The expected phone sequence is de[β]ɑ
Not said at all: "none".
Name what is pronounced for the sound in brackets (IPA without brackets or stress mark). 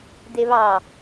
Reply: β